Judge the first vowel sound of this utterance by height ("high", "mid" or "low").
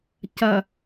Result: low